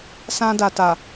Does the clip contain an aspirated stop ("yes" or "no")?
no